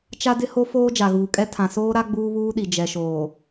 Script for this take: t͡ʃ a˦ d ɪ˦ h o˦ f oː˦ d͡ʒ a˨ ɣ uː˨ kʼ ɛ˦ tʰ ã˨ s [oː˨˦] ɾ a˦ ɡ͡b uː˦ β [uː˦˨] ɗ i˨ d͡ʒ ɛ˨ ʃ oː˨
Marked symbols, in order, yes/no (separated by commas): no, no